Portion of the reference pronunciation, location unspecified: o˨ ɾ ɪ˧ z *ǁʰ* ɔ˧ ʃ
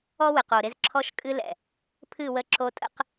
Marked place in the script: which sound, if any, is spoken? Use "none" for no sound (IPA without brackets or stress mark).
ǁʰ